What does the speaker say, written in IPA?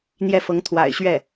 n̪ j ɛ˥˩ f ɤ˧˥ ŋ t̪ʰ w a̰˨˩ ɪ̯ ɕ ɥ ɛ˥˩

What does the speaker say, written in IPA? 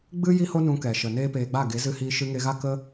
ɡ͡b ɨ˦ j i˦ h o˦ n ũ˧ k ɛ˨ ʃ ə˨ n eː˦ p eː˧ ɡ͡b a˦˨ ɡ e˨˦ z ɨ˧ h iː˧ ʃ ɨ˧ ŋ e˧ ɣ a˦ k ə˦

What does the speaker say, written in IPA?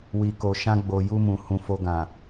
w i˨ k o˨ ʃ ã˧ ɡ͡b o˨ j u˧ m ũ˨ h ũ˨ f o˧ ɡ ã˨

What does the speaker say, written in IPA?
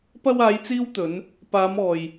p ɐ˥ w aː˨˧ j t͡s iː˧ w t̪ ɵ˨˧ n | p aː˨˧ m ɔː˨ j

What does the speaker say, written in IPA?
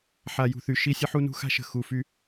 ħ a˨ j ṳ˨ θ y˨ ʃ i˦ sʲ ə˦ ħ u˦ n ṳ˦ x a̤˦ ʃ ə̤˨ x u˨ f y˦

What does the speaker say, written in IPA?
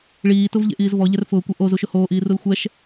ɭ iː t ʊ v ʎ ḛ ʔ iː z v ɔ ʎ ɛ r f ʊː kʷ e ʔ o z u ʃ ʊ h oː ʔ iː r u l xʷ ɛ ʃ

